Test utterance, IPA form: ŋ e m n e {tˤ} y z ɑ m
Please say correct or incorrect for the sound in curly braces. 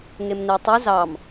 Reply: correct